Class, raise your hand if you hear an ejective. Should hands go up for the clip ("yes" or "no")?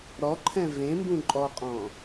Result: yes